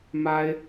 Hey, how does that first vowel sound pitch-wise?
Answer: high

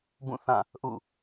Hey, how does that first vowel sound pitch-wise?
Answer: falling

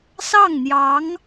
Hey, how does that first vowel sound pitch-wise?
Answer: falling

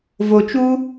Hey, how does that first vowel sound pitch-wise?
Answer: low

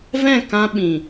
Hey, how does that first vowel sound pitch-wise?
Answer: falling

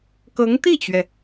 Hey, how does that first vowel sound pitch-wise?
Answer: rising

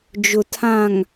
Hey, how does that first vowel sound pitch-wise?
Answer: low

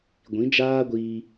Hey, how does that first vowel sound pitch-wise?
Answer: rising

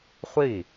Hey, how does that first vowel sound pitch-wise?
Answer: falling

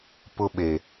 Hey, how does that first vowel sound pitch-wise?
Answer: high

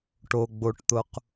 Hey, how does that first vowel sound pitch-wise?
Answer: low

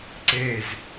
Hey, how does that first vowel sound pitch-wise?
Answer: falling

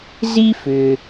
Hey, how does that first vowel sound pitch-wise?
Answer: high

